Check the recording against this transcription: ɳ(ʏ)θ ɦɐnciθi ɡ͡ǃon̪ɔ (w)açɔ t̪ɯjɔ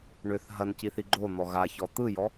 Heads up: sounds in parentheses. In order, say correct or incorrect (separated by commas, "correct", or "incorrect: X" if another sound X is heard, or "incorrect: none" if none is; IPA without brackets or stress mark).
correct, incorrect: ɣ